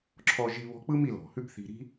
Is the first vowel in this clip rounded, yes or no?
yes